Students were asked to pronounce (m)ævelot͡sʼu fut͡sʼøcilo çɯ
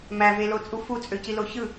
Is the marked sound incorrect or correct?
correct